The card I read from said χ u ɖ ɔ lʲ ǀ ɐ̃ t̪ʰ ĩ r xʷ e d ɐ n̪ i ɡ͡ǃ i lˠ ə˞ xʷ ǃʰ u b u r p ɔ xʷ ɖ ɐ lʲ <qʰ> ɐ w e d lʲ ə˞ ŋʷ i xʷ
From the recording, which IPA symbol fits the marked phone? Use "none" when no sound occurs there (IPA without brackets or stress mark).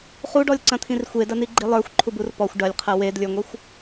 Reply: qʰ